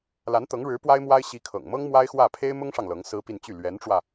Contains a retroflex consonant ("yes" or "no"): yes